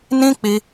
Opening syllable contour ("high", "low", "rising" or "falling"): high